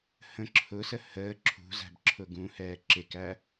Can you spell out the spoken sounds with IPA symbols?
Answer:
hə̃ ǁʰʊsə həː ǁʰṳzæ̤b ǁʰʊɡũhɛː ǁɪkæ

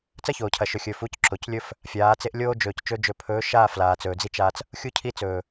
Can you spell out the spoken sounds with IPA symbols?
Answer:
t͡sɐ˦çoː˨cʰɐ˨ʃɵ˨ xʲɵ˨ fu˨˦cǁo˨clʲɵ˦f | fʲaː˨˦t͡se˦ʔ lʲoː˦d͡ʒɵː˨ct͡ʃɵ˦ d͡ʒɵ˨pʰɵː˨˦ʃaː˦˨ flaː˨t͡sɵː˨d͡zi˦t͡ʃaː˦t͡s | xʲu˦cʰi˦ t͡sɵː˨

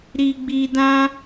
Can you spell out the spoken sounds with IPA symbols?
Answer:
ɾi˧ɡ͡bi˧ dã˦

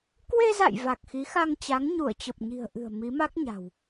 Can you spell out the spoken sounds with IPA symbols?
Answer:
kwe˧za̰˧˨j va˨˩k̚xi˨˦xa˧ŋt͡ɕa˨˦ŋ ɲu˧˩ə̯t͡ɕə˨˩p̚ɲi̤˨˩ə̯ ʔɨ̤˨˩ə̯ mi˨˦ma˦˥k̚ɲa̤˨˩w

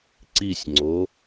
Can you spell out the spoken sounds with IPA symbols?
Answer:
ǀisʲŋ͡ǀo

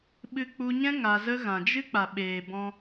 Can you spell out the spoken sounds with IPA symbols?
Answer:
ɓɨ˦ k͡pu˧ɲɛ̃˦ ŋa˧zə˦ ɣã˨d͡ʒɨ˦k͡pa˨ ɓeː˨bɔ̃˧

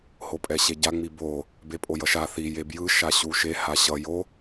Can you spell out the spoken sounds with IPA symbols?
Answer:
hopʼɛɕeɟa ŋ͡mibo | bepʼojʌʃa θi jebjɯ ʃaɕuʃe haɕʌ jo

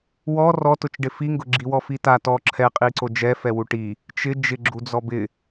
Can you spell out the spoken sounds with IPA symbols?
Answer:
wɔ rɔtʊt͡ʃɖɪ fiŋɡʊ ɡ͡ǁiwɔfita tɔ ǁʰɛqʼiǀo d͡ʒɛfɛwu ʈi | t͡ʃɪ d͡ʒɪɡ͡ǁud͡zɔ bɪ

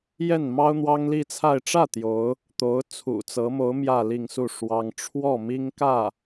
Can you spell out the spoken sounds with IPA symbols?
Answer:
jɛ˥˩nmɑ˥ʊ̯ n̪wɑ˥ŋli˥˧t͡sʰa˥˧ɪ̯ ʈ͡ʂä˥˩ t̪jo˧˥ʊ̯ | t̪o˧˥ʊ̯ t͡sʰṵ˨˩t͡sɤ˧˥mo˧˥ʊ̯ mjä˥˧li˥˧ŋsu˥˩ ʂwɑ˥ŋ ʈ͡ʂʰwɔ˥˩mi˥ŋ kä˥˩

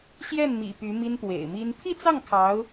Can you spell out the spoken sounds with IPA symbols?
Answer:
ɕjɛ˥˩nmḭ˨˩ py˧˥mi˥nt̪wḛ˨˩ɪ̯mi˥n pʰi˥˧t͡sɑ˥˩ŋ kʰɑ˧˥ʊ̯

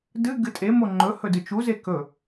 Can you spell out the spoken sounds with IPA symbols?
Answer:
dɨɡɨ tʼe moŋ͡ǃɵhɵ dɨt͡ʃuze kɵ

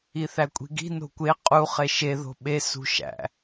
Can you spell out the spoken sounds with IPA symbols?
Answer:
iθækʷʼi̤ɡi̤ no̤kʷe qʼu χeʃe ðo̤ɓe sṳʃæ̰

